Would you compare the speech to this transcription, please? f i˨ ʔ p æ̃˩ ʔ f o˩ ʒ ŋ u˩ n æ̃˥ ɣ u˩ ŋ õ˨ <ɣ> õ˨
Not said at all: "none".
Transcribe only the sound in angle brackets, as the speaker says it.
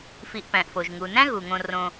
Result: r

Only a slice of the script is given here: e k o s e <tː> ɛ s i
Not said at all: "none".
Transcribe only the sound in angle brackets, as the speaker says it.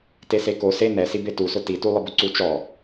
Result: n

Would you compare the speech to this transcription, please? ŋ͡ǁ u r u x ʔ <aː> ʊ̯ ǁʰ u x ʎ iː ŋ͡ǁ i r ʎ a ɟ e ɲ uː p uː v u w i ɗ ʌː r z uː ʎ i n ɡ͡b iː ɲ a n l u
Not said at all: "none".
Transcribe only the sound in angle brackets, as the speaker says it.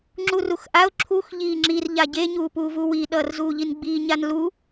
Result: a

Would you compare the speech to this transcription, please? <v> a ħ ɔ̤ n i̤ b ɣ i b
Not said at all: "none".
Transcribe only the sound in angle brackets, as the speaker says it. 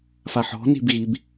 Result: f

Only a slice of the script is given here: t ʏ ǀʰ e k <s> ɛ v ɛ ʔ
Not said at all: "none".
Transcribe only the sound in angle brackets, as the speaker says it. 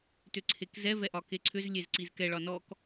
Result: z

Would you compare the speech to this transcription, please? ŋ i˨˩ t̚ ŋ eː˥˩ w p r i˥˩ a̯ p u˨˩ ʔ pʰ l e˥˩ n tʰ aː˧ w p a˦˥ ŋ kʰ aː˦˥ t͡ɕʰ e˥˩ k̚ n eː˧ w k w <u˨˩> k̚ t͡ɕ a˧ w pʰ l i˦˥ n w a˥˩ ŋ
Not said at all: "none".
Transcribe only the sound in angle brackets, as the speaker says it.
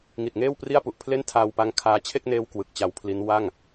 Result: ɯ˨˩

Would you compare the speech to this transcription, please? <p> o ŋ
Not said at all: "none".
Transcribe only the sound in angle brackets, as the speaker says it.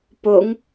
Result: p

